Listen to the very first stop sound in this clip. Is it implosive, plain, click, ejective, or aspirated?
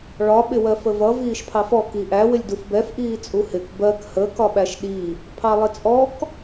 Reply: implosive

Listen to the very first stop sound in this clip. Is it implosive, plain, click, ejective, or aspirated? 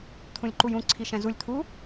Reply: aspirated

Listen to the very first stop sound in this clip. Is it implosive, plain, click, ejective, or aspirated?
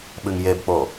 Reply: implosive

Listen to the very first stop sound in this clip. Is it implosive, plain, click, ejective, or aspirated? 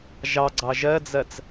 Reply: click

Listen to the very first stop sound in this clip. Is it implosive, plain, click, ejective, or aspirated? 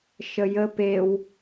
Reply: plain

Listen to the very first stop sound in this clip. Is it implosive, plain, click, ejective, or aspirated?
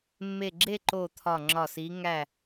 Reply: click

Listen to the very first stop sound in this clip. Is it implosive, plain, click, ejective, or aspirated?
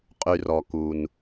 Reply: ejective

